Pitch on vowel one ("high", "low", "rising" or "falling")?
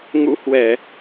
rising